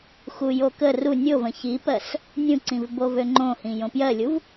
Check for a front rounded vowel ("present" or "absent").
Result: present